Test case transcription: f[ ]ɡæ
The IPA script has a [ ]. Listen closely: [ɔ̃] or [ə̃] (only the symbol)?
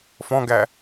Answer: ɔ̃